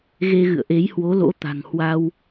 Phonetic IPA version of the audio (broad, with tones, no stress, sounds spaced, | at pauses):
ɣ e˧ ɣ ɨ̰˧˨ ə̯ ʔ e˨˦ j h w o˨˦ l o̰˧˥ t̪ a̤˨˩ ŋ h w a˧ w